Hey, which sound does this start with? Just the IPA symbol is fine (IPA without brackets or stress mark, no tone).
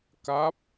k